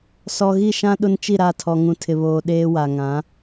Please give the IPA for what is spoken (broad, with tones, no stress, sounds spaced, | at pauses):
s ɔ˨ ɣ i˦˨ ʃ ã˦ ɗ ʊ˦ n t͡ʃ i˦˨ ɾ a˦˨ tʰ ɔ˨ ŋ ũ˨ tʰ ɪ˨ β oː˨ ɗ eː˦ w a˨ ŋ ã˨˦